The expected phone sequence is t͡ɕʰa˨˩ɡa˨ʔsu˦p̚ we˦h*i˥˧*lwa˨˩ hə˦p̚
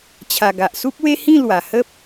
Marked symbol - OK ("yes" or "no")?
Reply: no